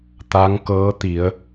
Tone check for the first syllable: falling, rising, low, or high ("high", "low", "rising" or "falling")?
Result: rising